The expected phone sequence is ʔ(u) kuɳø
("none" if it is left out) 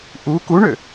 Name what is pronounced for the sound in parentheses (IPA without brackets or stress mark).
u